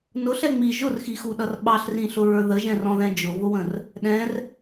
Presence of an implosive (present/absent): present